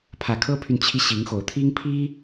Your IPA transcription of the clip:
pʰä˨˩kʰɤ˥pʰy˨n t͡ɕʰi˥ɕi˧˥ŋxo˨˩ʊ̯ t̪ʰi˥ŋpʰi˥

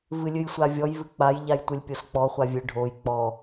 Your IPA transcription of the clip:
vɨlʲɨjsʷavʲɔj vɨk͡paj ʎajtʷɨlʲpʲosk͡pɔ χʷavʲɨ ɖʱoj k͡pɔ

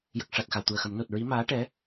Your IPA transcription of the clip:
jə˨˩k̚ʂa˨˩t̚ xa˨˩˨wt̪u˨˩ə̯xə˨˩˦m no˨˩t̚ɹi˧˥ maː˧˥ ʈɛ˧˥

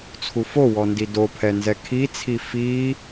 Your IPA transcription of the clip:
t͡sʰufowɔ ndidopʰɛ nzɛkʰit͡sʰi fi

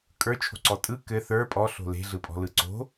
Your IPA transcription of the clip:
kʼə˞t͡ʃʰo̤ǀɔ tʼɯ kɘ θə˞ pʼɔɬo̤ le̤ɮɯpʼɔ̤lɯ ǀo̤

